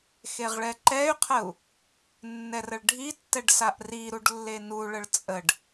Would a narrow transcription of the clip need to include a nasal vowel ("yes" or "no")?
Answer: no